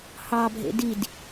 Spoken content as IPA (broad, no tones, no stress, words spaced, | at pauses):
hɑbʱḛ did